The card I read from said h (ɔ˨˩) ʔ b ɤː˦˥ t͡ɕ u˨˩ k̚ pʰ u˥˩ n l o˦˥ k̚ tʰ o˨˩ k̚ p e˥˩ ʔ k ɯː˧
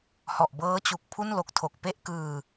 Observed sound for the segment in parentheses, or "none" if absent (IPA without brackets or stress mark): ɔ˨˩